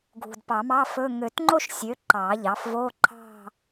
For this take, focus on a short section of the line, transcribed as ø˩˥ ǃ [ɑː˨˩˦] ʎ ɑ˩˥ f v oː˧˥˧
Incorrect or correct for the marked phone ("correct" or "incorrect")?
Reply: correct